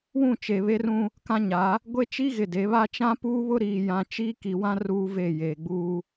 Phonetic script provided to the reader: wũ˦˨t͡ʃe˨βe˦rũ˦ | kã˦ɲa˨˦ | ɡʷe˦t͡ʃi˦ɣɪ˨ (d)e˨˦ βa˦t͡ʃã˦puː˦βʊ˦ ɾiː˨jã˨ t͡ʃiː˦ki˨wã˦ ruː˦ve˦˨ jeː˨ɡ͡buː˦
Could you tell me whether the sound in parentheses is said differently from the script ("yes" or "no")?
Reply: no